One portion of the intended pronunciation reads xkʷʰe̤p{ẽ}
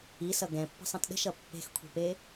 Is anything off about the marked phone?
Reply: yes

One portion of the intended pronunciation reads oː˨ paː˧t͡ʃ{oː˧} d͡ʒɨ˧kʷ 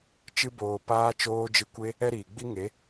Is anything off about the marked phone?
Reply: no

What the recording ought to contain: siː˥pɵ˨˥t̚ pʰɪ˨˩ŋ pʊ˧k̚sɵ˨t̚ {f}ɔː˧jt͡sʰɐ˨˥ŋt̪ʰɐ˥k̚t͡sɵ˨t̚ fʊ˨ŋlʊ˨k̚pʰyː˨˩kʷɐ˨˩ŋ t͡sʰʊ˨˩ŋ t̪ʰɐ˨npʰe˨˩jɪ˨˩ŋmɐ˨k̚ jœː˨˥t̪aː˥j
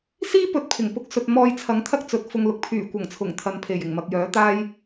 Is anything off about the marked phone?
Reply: yes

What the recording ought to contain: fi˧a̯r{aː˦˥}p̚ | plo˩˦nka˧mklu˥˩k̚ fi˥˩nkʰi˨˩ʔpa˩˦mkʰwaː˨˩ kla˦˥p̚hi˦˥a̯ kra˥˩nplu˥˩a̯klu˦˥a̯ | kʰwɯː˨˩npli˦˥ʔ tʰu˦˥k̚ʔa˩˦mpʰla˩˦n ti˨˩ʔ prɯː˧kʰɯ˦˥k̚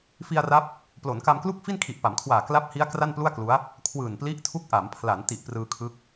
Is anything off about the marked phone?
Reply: yes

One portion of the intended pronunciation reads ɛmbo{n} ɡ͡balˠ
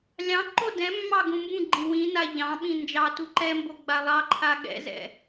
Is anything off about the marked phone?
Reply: yes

